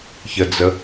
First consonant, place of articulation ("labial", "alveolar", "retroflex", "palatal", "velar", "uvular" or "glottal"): palatal